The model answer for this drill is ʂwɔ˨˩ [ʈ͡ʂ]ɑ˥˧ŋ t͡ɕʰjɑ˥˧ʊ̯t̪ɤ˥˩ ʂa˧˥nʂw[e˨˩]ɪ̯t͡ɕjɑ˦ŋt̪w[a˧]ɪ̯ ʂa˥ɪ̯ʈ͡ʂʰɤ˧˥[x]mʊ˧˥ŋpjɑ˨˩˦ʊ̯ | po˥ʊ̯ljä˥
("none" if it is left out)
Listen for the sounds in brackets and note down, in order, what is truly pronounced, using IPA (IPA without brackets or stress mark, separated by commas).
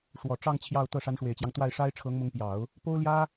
ʈ͡ʂ, e˨˩, a˥˩, ŋ